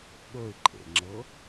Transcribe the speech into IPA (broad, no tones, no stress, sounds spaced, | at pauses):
ɠ ɵ ɪ̯ ǃʼ ḛ ŋ͡ǁ ɤ